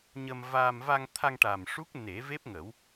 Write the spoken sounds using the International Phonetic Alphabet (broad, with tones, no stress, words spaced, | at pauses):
ɲə˧mvaː˧m va˧ŋ t̪ʰa˧ŋʈa˨˩m ʂu˦˥k̚ne˨˩˦ve˦˥p̚ ŋə˨˩˦w